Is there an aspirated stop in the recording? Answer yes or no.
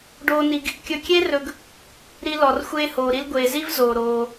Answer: no